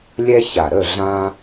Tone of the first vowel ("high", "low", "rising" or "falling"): high